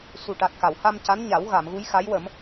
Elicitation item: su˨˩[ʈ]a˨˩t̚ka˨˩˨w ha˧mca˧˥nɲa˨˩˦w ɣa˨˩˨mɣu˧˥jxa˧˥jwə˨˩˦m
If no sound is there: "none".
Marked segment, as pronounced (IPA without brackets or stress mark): ʈ